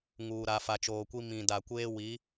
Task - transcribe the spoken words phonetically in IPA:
ŋuː˨ ɾa˨fa˨t͡ʃoː˨kʷi˦ mĩ˨ da˨kʷeː˦ wi˨˦

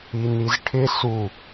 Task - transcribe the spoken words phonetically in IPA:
inizʈʰɪ su

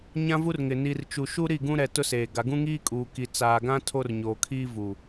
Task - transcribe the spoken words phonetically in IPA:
ɲã˦vu˦rŋɪ˨ ni˨rt͡ʃu˨ʃu˦ ɾi˦˨ɡũ˦ɾɛ˨ tʊ˦seː˨ ɡa˨ɡũ˦ŋiː˦kʼuː˨ ki˨t͡saː˨ɡã˦ tʰo˦rɲoː˨kʰi˦vu˨

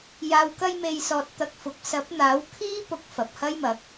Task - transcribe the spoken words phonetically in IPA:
jaː˨wkɐ˧jme˨jsɔː˨t̚ t̪ɐ˧k̚fʊ˨˥k̚ sɐ˨˥p̚n̪aː˨˥w kʰiː˥pʊ˨˥k̚ fɐ˨p̚hɐ˥jmɐ˨˥k̚

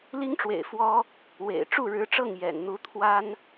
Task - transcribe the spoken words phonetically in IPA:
li˥ŋʈ͡ʂwḛ˨˩ɪ̯ fwɔ˥ | wḛ˨˩ɪ̯ ʈ͡ʂu˥˩ɻɻ̩˧˥ʈ͡ʂɤ˥˩ŋ jɛ̰˨˩nn̪u˥ t̪ʰwa˥n

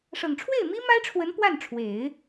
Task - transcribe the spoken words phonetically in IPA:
ʂɤ˨˩ŋʈ͡ʂʰwe˥˩ɪ̯mi˥ ma˥ɪ̯ʈ͡ʂʰwə˧˥n pwa˥˩nʈ͡ʂʰwe˨˩˦ɪ̯

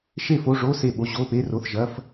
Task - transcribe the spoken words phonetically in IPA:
ʃe˥˨fo˧˥˧ʐo˧˥˧ se˥˨ɓo˧˥˧ ʑo˧˥˧pe˧˥˧ro˧˥˧θʒɐ˧˥˧f

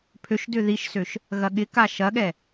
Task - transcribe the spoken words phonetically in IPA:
pʰøʃdʏ ðiʃsøʃ | ɣɐɠɪka ʃɐɠɛ

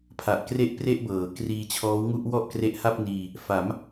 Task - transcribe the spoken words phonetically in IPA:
pʰa˨˩ʔkre˥˩ʔ pre˥˩ʔbɤː˩˦ kriː˧t͡ɕʰɔː˦˥wŋu˥˩ʔ wɔ˥˩ʔkre˦˥ʔha˥˩p̚niː˧ | fa˩˦m

